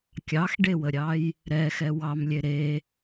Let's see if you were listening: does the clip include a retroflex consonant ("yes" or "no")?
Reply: yes